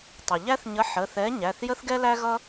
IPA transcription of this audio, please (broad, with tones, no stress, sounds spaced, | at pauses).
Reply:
tˤ ʌ˩ ʎ æ˥ θ ɲ ə˨˥ ħ ə˩˧˩ θ ɛ˨˥ ɲ æ˩˧˩ θ j ə˥ θ ɡ ɛ˥ l æ˥ ɣ ʌ˥